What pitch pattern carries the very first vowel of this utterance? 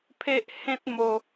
high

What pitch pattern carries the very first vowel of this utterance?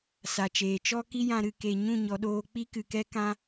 low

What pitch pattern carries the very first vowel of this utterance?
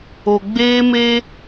low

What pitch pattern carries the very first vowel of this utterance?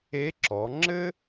rising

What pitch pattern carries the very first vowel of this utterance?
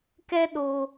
high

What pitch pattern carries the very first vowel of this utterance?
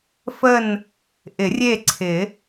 falling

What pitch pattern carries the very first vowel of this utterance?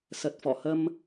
low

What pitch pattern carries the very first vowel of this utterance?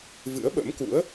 rising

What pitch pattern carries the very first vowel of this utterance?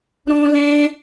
high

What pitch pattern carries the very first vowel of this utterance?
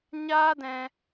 high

